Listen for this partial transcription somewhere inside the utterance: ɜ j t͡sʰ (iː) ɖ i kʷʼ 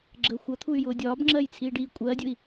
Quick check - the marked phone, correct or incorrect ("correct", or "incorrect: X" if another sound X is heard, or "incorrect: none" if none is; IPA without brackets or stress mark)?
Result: correct